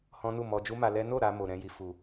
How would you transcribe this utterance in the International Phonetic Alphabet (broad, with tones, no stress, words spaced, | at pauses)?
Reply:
hɔ̃˦nu˦˨ mɔ˧d͡ʒu˦ma˧lɛ˦ no˦˨ ɾa˧ mo˨ɾɛ̃˧ji˨ fu˨